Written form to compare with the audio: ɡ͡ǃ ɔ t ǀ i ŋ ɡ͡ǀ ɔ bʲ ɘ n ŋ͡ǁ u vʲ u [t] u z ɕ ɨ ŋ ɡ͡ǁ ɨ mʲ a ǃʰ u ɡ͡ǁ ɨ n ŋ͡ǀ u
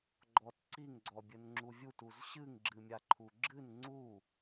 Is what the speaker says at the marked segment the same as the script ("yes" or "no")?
yes